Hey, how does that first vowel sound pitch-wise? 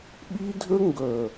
high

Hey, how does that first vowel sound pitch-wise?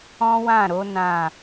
high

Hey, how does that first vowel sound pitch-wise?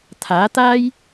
rising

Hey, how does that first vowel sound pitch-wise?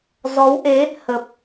rising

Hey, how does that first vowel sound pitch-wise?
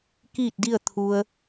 falling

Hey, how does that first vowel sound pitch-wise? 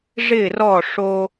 falling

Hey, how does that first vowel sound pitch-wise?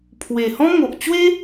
low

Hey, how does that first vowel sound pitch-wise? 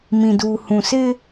low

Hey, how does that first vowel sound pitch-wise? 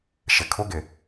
low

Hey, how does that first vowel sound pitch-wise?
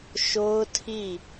high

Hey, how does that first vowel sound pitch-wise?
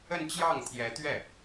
falling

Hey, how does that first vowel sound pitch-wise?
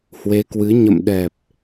rising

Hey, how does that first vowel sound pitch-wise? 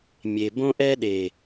low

